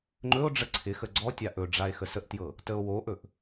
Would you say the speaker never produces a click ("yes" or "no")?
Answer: no